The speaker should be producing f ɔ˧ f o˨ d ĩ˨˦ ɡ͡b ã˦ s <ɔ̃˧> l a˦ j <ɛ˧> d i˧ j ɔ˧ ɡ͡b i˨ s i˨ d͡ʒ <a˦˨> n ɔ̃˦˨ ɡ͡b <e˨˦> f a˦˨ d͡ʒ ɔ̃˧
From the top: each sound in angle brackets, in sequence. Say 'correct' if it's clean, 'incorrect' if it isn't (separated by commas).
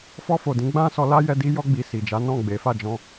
incorrect, correct, incorrect, correct